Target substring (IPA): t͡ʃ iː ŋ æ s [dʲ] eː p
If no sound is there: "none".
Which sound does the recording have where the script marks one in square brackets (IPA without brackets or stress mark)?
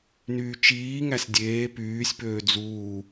dʲ